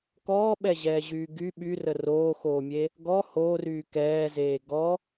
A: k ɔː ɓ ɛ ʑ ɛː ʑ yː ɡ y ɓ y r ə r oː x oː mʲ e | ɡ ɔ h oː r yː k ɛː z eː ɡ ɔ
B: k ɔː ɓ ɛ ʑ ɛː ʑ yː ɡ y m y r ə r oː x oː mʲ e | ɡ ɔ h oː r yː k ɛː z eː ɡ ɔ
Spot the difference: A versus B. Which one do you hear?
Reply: A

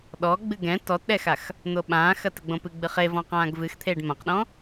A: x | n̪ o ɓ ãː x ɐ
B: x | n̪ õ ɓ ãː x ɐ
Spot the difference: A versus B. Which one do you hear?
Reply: A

